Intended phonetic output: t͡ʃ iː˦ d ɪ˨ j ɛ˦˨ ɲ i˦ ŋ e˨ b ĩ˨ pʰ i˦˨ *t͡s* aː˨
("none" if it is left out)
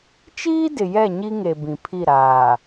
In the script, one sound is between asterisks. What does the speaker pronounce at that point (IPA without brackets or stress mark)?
ɾ